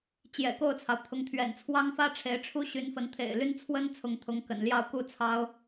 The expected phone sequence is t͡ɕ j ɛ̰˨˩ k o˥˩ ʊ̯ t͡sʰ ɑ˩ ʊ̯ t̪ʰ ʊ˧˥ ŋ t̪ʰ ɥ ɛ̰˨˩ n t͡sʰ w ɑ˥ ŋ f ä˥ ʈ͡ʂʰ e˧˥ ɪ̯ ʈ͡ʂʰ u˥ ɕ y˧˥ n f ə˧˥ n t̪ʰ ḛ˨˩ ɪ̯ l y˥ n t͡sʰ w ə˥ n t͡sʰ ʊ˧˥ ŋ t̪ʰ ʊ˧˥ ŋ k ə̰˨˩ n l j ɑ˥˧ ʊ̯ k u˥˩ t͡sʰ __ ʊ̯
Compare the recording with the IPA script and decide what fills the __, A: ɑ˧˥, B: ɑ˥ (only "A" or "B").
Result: B